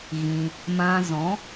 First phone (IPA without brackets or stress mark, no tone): ɣ